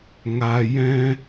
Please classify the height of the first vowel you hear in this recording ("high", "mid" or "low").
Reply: low